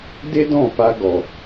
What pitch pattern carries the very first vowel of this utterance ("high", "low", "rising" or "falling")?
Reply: high